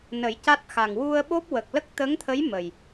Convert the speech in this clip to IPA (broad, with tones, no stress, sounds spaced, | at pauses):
n ə˨˩˦ j c a˦˥ t̚ x a˨˩ ŋ w u˧ ə̯ ɓ o˦˥ p̚ w ə˨˩ k̚ l ə˦˥ k̚ t̪ ə˧˥ ŋ t̪ʰ ə˧˥ j m ə˨˩ j